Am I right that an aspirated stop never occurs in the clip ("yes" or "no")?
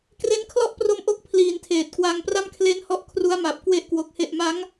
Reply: no